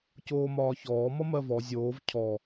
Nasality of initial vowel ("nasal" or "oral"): oral